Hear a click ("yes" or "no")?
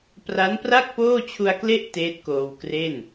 no